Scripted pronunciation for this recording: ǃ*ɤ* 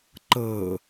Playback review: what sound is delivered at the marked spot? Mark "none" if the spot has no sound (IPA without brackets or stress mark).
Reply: ɤ